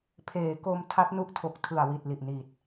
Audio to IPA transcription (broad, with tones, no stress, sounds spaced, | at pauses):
pʰ eː˩˦ k o˧ m tʰ a˦˥ t̚ n u˦˥ ʔ tʰ o˨˩ k̚ tʰ ɯ˨˩ a̯ w i˨˩ t̚ l i˨˩ ʔ n i˨˩ t̚